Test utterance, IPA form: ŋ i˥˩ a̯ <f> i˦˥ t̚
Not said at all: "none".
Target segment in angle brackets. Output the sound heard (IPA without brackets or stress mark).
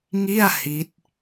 h